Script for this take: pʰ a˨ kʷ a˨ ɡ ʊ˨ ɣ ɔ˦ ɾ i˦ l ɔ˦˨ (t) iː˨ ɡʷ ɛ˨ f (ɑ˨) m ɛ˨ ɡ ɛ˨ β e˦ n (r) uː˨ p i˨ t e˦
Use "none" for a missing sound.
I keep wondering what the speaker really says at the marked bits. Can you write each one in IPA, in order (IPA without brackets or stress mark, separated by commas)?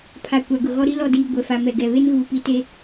d, a˨, ɣ